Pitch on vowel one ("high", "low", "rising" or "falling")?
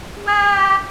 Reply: high